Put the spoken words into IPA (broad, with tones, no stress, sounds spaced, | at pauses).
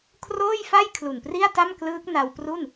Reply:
kʰ r oː˥˩ j f a˥˩ j kʰ l u˨˩ n p r i˥˩ a̯ t a˥˩ m k l ɯː˦˥ k̚ n a˧ w p r u˥˩ n